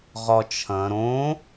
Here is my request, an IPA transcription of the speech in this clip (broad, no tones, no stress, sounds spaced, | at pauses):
ʁ ɒ t͡ʃʰ ɐ̃ ɾ õ